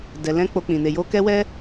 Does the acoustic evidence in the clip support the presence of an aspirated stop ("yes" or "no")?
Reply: no